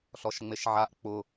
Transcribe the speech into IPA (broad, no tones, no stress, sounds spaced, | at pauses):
ɬ ɔ ʃ ŋ͡m e ʃ ʕ a ʔ k͡p ʊ